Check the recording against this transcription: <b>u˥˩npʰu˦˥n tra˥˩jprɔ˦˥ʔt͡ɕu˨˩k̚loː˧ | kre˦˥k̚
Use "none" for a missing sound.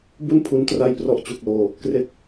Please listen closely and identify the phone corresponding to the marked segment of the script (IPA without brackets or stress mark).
b